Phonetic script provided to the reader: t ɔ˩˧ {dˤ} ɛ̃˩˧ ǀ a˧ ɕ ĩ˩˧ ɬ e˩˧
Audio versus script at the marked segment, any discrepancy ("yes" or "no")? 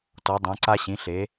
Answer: no